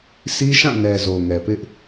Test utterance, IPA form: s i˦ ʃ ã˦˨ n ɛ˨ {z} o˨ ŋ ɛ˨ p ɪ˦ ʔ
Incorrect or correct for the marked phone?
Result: correct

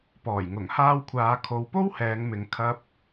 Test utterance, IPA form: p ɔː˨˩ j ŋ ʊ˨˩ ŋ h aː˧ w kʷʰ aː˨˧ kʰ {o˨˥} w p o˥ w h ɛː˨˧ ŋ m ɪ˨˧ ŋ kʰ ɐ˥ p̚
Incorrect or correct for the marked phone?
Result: incorrect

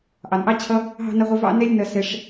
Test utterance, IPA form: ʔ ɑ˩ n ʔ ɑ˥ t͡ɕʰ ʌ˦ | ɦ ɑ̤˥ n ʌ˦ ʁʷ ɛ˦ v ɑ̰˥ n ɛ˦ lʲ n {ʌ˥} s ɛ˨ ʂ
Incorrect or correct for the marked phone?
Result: incorrect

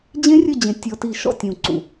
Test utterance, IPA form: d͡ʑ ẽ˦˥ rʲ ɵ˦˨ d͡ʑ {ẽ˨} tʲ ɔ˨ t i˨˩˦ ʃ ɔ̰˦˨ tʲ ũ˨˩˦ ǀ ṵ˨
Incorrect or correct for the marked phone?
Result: correct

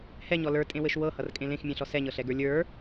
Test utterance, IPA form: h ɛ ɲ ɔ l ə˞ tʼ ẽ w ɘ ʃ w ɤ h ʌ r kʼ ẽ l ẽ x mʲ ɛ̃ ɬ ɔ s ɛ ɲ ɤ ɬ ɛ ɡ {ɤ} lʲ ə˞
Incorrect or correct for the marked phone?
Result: incorrect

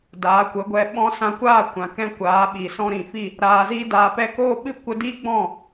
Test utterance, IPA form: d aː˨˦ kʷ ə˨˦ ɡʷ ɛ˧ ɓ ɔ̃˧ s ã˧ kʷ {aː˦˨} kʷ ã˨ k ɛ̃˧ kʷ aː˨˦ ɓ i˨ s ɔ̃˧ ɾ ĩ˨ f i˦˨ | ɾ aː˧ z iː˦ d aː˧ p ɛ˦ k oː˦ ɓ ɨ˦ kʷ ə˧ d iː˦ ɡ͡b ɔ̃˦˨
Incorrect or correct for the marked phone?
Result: correct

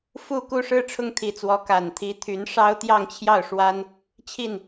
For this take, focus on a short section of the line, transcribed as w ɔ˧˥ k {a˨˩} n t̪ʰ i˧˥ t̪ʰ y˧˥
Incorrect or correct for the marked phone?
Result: correct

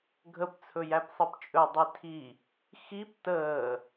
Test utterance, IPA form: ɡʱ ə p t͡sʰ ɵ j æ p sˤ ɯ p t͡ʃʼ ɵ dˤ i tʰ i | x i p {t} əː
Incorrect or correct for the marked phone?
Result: correct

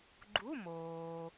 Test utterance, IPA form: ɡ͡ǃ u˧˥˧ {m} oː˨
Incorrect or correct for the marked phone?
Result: correct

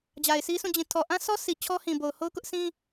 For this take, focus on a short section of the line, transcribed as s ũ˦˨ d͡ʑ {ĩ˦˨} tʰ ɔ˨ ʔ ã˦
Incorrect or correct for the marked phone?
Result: incorrect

